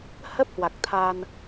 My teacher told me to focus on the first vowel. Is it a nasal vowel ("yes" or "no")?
no